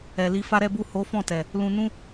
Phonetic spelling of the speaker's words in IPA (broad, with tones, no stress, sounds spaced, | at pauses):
ɛ˨ l i˧ f a˦ ɾ ɛ˦ b u˦˨ h o˨˦ f ɔ̃˦˨ t ɛ˨ | l ũ˦ n ũ˦